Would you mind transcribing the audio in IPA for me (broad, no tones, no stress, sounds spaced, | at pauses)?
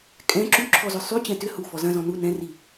kʼ ɛ̃ ǁ y ǁʰ ɔ z ʏ sˤ y t͡ɕ ɛ̃ t ʏ h u f ɔ z ɐ̃ z ɔ̃ n u n ɛ̃ r i